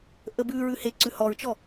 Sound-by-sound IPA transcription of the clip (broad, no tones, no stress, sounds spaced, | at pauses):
ʔ ə b ʉ ɹ ʉ h e ǀ ʉ h ɔ ɹ t͡ʃ ɔ